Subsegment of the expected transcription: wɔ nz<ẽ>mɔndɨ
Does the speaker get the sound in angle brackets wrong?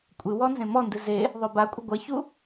no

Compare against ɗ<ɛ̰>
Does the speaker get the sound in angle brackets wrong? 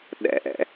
no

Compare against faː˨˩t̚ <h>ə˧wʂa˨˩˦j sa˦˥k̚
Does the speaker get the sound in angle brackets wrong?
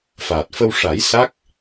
yes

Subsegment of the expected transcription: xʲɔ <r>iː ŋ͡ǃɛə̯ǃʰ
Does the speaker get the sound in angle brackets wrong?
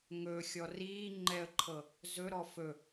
no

